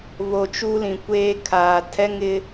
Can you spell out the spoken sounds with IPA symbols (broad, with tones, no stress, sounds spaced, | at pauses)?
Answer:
β o˨ t͡ʃ u˦ l ĩ˨ kʷ eː˦ kʰ aː˨ tʰ ɛ˦ ŋ ɪ˦